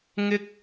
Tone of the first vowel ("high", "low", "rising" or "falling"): high